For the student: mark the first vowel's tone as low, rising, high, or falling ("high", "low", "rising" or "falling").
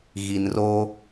low